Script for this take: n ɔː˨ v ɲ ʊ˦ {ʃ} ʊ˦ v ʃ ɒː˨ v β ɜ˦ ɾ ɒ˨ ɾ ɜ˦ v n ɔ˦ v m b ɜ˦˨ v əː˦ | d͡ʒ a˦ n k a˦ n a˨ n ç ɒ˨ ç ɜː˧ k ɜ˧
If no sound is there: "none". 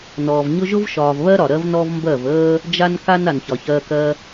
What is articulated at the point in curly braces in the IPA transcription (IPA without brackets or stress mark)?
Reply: ʒ